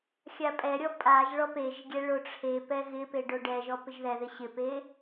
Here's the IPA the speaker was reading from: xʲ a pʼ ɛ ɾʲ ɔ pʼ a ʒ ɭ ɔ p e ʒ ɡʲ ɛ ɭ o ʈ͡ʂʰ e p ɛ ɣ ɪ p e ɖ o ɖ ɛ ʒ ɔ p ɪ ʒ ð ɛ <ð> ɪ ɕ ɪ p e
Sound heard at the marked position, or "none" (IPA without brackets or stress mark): ð